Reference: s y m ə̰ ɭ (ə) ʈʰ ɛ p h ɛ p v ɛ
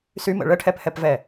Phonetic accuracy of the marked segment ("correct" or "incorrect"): correct